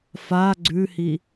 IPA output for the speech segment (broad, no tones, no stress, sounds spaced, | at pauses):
f a ɡ͡ǀ ʉ h i